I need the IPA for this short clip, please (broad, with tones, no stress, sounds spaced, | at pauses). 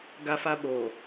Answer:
ɡ a˦ f a˦ ɓ oː˨